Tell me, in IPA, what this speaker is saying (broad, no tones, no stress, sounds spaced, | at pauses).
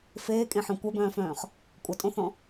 f eː kʼ ẽ ħ œ̃ kʷ œ b œ̃ː f œ̃ː χ | kʷʼ ʌ tʼ õ θ ɔ̃